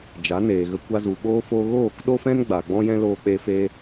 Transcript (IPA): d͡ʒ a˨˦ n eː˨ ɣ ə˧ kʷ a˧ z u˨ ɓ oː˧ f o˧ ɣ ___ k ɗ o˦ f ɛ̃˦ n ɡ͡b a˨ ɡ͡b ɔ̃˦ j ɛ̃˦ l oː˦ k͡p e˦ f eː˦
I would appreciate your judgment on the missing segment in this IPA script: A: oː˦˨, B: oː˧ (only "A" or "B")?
A